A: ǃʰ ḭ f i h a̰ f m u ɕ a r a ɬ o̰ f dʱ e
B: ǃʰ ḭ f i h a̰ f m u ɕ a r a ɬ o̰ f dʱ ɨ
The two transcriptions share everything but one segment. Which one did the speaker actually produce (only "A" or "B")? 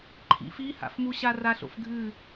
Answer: B